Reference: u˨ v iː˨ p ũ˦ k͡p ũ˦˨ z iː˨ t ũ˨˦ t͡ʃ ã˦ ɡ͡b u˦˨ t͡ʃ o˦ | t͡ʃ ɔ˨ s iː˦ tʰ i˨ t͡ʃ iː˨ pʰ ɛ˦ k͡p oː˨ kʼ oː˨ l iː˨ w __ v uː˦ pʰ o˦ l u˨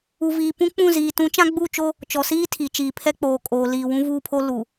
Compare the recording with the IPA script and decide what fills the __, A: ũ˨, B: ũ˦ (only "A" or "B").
B